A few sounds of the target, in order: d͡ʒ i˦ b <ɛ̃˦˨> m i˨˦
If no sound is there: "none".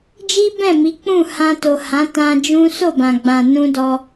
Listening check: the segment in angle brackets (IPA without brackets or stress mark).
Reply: ɛ̃˦˨